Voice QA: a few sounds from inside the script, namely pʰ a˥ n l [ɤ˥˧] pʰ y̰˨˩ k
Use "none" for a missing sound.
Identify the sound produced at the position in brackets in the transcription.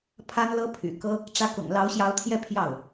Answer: ɤ˥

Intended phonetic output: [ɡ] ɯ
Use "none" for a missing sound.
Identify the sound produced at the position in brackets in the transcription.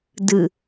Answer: d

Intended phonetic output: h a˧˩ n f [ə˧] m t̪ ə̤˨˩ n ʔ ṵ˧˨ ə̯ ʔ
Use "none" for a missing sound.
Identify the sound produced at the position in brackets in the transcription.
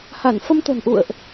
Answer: ə˧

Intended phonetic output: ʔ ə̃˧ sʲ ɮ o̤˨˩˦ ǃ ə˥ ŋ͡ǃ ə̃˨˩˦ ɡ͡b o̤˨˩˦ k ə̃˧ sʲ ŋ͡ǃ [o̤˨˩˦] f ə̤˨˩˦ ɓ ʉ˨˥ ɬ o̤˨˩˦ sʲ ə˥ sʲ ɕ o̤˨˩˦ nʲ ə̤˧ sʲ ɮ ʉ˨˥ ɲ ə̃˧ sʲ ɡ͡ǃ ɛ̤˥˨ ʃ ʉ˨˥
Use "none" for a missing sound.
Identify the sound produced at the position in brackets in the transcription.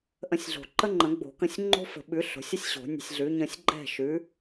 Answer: o̤˥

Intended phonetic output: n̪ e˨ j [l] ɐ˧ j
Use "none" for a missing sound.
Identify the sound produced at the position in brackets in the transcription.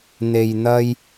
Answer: n̪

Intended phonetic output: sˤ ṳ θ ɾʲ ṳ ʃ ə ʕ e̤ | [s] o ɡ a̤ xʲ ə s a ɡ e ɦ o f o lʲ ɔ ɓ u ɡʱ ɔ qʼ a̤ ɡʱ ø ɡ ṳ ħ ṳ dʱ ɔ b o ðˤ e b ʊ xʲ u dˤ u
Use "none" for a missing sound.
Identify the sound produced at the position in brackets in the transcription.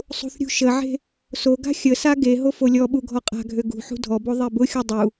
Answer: s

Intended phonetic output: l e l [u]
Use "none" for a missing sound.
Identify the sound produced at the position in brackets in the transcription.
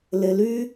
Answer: y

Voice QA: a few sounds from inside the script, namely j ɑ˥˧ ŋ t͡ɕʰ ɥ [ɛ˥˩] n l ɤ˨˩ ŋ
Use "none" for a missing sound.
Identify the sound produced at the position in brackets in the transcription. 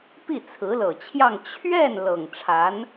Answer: ɛ˥˩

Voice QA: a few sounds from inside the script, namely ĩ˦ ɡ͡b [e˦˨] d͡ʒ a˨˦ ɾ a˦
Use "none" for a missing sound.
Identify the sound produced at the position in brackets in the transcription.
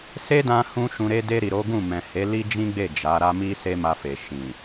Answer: e˦˨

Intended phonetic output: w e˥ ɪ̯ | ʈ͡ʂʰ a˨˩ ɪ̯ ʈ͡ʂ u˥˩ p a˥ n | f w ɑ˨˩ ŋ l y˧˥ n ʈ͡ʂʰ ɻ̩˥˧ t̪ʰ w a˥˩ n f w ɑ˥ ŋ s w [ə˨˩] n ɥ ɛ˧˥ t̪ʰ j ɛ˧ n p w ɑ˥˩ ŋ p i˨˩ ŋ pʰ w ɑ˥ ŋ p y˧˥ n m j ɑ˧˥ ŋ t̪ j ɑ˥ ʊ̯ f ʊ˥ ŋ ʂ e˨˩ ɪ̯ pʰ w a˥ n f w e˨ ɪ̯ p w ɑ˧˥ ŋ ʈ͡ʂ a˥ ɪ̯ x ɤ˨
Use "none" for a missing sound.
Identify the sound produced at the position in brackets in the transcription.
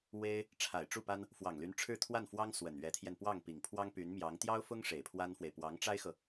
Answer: ə˨˩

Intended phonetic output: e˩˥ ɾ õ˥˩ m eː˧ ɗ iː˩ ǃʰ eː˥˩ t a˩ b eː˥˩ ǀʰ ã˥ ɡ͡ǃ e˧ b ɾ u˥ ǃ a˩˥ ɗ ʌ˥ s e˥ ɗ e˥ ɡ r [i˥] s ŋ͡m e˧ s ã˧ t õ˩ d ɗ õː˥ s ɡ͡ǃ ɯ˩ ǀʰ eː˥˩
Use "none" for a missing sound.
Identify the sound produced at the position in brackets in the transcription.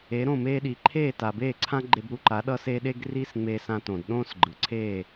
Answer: i˥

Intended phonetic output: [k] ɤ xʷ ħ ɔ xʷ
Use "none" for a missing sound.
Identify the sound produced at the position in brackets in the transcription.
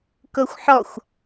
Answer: k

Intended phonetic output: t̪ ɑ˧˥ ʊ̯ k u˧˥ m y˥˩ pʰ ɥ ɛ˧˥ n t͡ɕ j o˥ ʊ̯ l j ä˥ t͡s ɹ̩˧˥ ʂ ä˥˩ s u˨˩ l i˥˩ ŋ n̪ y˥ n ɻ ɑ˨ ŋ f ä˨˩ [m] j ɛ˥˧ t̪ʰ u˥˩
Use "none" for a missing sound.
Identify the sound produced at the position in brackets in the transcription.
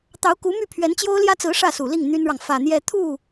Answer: n̪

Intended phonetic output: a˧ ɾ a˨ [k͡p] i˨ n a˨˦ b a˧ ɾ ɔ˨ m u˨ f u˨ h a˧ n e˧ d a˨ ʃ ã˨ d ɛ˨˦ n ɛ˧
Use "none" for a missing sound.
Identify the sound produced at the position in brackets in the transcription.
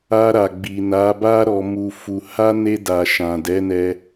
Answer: ɡ͡b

